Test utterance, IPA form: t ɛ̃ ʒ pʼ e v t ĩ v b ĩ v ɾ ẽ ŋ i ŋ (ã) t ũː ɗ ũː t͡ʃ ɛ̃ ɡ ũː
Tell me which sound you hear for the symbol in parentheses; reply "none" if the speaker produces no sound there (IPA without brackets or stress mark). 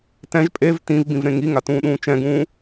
a